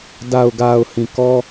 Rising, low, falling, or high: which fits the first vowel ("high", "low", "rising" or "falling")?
low